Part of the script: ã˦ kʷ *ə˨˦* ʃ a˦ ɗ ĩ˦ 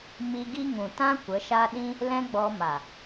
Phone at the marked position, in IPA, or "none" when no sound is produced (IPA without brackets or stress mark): ə˨˦